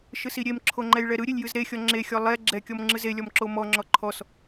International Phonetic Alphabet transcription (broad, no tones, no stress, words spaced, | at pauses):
ʃɯsiɾʲemǁʰo ŋ͡ǃɛjɭɛɾɯɾʲelʲ jɯzɾexʲɔ ŋ͡ǁexʲɔ lˠɛ ɡ͡ǁɛkʲɔm ŋ͡ǁɯzelʲɔm ǁomɔŋ͡ǁɔ ǃʰɔs